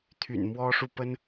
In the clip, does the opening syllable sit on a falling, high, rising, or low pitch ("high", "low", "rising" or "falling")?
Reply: low